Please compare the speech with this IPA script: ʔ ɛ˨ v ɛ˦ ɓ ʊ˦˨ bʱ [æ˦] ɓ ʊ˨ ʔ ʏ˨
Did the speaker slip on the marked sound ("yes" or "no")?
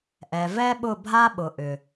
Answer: yes